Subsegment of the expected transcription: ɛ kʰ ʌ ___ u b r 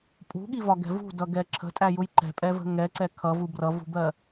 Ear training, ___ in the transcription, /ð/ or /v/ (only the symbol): v